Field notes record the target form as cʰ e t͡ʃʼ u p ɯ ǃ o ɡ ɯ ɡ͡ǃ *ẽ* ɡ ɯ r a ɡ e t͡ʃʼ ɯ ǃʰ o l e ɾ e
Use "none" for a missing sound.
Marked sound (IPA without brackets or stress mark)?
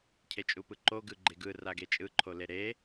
e